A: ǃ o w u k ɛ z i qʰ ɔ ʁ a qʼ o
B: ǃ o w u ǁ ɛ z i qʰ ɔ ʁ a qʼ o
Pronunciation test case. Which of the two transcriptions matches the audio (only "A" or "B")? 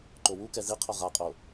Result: A